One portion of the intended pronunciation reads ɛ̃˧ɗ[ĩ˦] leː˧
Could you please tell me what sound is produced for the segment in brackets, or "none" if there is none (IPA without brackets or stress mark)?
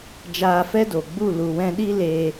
i˦